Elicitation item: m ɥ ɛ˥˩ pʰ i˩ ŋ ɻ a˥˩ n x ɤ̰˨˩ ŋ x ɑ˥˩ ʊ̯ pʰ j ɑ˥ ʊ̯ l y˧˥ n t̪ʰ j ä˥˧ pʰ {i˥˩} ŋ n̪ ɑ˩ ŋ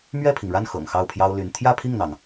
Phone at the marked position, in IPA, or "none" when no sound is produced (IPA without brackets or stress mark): i˥˩